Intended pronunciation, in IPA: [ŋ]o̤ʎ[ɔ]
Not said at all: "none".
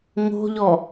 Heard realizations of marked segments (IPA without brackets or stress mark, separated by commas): ŋ, ɔ